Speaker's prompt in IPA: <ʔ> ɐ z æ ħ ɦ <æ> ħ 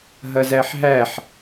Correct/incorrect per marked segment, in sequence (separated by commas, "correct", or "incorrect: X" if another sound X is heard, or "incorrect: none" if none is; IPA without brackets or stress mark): incorrect: ɦ, correct